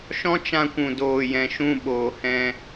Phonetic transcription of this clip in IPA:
ʃ ɔ̃˦ t͡ʃ ã˧ kʷ ũ˨ d oː˨ j ɛ̃˨ ʃ ũ˧ ɓ oː˨ h ɛ̃˧

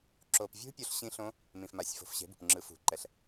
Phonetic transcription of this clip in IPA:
ǁ o˨ p vʲ ṳ˦˥ pʲ o˦˥ ɬ ɕ ĩ˦˥ ɬ õ˦˥ | m ĩ˨ f m a˨˦ sʲ f o̤˨˦ f ɕ e̤˨˦ b ṳ˨ p ŋ͡ǁ ɯ˨˦ f ṳ˨ ǃ ɛ˨ ɬ

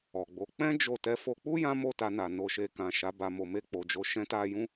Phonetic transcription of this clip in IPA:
ɔ˨ ɡ͡b o˨˦ k͡p ɛ̃˦ d͡ʒ o˦˨ t ɛ˧ f o˧ k͡p u˦ j ã˦ m o˦˨ t a˧ n a˨ n o˨ ʃ e˨ k ã˨ ʃ a˨˦ b a˧ m o˨ m e˧ k͡p o˨ d͡ʒ o˨ ʃ ɛ̃˨˦ t a˧ j ũ˦

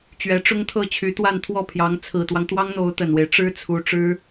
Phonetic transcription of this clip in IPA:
t͡ɕ ɥ ɛ˧˥ ʈ͡ʂ ʊ˥ ŋ t̪ʰ ɤ˥˩ t͡ɕʰ y˧˥ t̪ w a˥˧ n t̪ʰ w ɔ˥˩ pʰ j ɑ˧˥ ŋ t͡sʰ ɹ̩˨˩ t̪ w ɑ˦ ŋ t̪ w ɑ˥ ŋ n̪ o˧˥ ʊ̯ t̪ ə˨˩ n w e˦ ɪ̯ ʈ͡ʂ ɻ̩˥ t͡sʰ u˧˥ ʈ͡ʂ ɻ̩˥

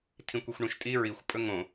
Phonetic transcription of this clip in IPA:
tʰ ĩ kʷ i xʷ ɳ ũ ʃ tʼ i ɹ i xʷ pʼ ɵ ŋ õ

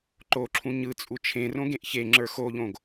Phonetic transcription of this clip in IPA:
ǃ o ǁʰ ũ ɲ ɯ t͡sʼ u t͡ʃʰ ẽ r õ ɡ ẽ ʔ ç e ŋ͡ǁ ə˞ x o ʎ õ ɡ

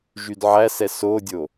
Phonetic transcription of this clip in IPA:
ʒ y d ʕ æ s ɛ s o dʲ o

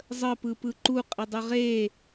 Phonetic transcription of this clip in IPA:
zˤ ə p ɯ p ɯ ǃ u qʼ ɪ dˤ ɯ ʁ e

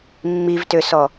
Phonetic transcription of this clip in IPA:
mː i v t ø s ɔ

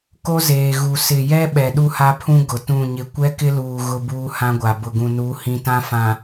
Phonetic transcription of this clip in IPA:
k o˦ z eː˨ ɣ u˨ s ɪ˨ j ɛ˦ ɓ ɛ˨ ɗ u˦ h a˦ pʰ ũ˦ ɡ ʊ˨ t ũ˦˨ ɲ ɪ˦ kʷ ɛ˦ k ɪ˦ l uː˨ ɣ ʊ˦ b uː˦ h ã˦ ɡʷ a˨ b ʊ˨ ɡ ũ˨ n u˨˦ h ĩ˦ t ã˦ f ã˨

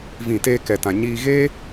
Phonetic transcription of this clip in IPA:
v ĩ˦˨ t eː˧ k ɛ˨ t ã˨ ɲ iː˧ ɣ eː˦

